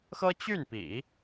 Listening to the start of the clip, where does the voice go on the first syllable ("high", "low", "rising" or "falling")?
high